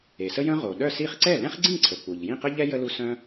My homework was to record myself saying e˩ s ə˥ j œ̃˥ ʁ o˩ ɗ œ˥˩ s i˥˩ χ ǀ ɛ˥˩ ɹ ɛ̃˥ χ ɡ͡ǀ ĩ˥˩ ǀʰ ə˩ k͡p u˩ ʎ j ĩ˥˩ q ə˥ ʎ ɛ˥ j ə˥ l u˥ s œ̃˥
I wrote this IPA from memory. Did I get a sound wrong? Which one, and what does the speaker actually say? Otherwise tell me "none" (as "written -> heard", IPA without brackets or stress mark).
ɹ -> l